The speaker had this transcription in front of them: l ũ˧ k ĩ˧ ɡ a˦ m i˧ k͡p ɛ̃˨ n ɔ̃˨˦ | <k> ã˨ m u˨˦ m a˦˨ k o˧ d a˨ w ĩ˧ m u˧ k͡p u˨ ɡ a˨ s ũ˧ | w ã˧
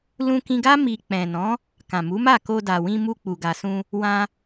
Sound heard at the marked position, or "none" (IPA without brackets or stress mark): k